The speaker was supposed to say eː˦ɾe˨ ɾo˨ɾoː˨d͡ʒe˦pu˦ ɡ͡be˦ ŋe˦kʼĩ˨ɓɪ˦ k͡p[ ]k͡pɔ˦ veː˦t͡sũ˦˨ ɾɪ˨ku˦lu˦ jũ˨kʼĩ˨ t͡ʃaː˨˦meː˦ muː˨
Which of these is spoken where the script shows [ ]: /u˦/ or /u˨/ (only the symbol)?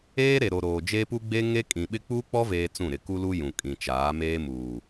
u˦